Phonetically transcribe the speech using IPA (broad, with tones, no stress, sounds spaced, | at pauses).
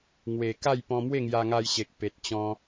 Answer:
ŋ w e˨˩ k a˥˧ j p ɔ̃˧ m w e˥˧ ŋ j a˧ ŋ a˧ j ɕ e˨ k̚ p e˨ t̚ t͡ɕ ɔ̃˧